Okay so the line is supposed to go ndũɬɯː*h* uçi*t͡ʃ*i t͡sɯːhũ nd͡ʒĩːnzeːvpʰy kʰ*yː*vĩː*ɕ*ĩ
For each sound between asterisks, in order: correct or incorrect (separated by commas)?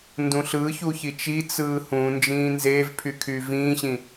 incorrect, correct, correct, correct